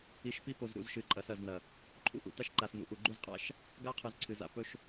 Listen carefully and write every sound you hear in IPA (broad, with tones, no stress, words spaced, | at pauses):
i˨ʃpi˦po˨z ɾṵ˨z ʃɨ˨ǃʼɐ˨˦sɐ˨znɐ˨ | ǃʰṵ˦˨ʔṵ˨ta˦ʃ ǃa˨snṵ˨ ʔu˨ ɡ͡ǃʉ˦zqʼa̰˦ʃ | ɡa˦qʰɨ˨z ǀʰɨ˨za̰˦ pɵ˦ʃ